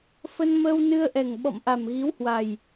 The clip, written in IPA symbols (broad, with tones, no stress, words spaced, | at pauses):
fə˧nməː˧wnɨ˧ə̯ʔɛ˨˩ŋ ɓɔ̰˧˨mʔa˨˩mɣi˨˦whwa˨˩j